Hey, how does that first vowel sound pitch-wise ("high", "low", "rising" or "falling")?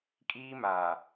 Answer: high